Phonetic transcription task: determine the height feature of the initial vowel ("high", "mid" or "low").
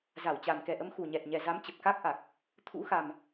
low